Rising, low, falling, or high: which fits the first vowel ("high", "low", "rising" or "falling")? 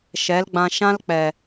rising